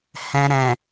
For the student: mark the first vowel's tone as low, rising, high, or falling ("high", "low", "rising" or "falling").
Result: low